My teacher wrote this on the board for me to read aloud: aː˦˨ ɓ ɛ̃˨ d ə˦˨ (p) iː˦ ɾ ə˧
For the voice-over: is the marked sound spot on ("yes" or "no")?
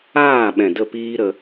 yes